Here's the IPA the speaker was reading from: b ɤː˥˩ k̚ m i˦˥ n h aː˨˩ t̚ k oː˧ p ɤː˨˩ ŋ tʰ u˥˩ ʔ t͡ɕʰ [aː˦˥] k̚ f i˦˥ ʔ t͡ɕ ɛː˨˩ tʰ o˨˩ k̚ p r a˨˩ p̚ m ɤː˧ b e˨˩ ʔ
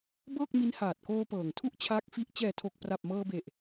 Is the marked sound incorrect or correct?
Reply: correct